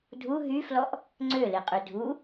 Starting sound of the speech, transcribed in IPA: dʱ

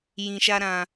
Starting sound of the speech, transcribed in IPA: j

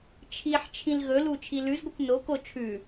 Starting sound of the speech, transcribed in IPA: t͡ʃʰ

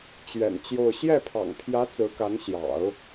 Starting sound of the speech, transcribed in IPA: t͡ɕ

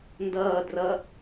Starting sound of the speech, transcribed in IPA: n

